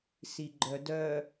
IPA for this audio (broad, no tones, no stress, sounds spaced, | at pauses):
s i ɡ͡ǃ œ d œ